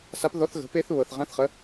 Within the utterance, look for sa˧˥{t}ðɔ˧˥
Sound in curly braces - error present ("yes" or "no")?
yes